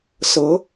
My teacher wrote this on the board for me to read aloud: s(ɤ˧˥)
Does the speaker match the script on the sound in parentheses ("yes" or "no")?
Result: yes